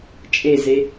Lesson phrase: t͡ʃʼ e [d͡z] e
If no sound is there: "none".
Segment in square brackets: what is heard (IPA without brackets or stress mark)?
z